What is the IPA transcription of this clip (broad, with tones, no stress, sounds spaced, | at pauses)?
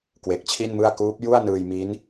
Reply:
k w e˨˩ k̚ t͡ɕʰ i˥˩ n m ɯ˥˩ a̯ k uː˦˥ p̚ j u˥˩ a̯ n ɯː˧ j m i˦˥ n